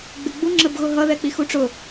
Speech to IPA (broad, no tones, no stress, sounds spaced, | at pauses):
ɡ͡b ɪ ɡ͡b u ŋ͡ǁ ə b ɣ ʊ ɦ ʌ ð ɛ k͡p i x u ʈ͡ʂ ʊ